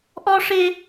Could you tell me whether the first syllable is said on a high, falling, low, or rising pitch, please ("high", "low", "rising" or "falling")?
high